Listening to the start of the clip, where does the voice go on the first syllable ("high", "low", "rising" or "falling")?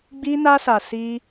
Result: high